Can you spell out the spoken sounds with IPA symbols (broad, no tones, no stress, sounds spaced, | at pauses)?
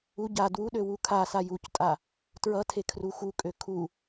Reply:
u ɟ a d w u ɗ ø w u kʰ a s a j u c tʼ a | t ɹ ʌ tʰ e kʰ r u x u kʼ ø kʰ u